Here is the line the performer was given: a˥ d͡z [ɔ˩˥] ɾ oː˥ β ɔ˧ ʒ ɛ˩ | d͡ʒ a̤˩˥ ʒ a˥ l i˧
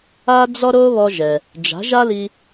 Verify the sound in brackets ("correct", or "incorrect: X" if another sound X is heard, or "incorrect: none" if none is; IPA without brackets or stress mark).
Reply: incorrect: ɔ˥